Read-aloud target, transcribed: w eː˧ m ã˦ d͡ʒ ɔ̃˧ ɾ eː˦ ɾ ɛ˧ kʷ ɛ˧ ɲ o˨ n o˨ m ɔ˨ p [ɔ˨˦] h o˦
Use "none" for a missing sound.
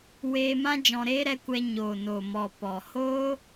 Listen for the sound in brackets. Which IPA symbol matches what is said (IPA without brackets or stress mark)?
ɔ˨